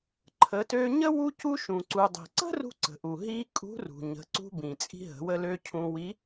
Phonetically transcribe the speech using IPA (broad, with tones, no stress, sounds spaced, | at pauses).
ǃʰ ə˩˧ t ø˧ ɲ ə˥ w u˧ c u˧ ʃ ũ˩ ǀ u˩ dˤ i̤˩ ǀ ə̤˥ r ṳ˧ ǀ ə̤˩ ʔ u˩ ɦ i˧ kʼ ṳ˧˥ r ṳ˩ ɲ ə̤˩˧ ǀ ṳ˧ b ĩ˩ t͡sʼ i̤˧ ɦ ə̤˩˧ w ə˧ l ø˧ cʰ ũ˧ w i˧˥